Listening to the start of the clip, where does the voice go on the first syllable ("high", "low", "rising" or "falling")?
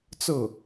falling